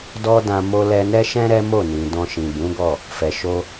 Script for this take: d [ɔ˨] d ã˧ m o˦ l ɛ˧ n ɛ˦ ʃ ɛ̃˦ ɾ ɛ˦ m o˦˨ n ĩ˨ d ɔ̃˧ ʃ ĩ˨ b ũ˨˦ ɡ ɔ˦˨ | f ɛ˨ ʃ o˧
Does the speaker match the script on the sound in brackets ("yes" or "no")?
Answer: no